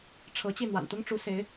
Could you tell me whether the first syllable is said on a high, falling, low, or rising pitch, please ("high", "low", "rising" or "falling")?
rising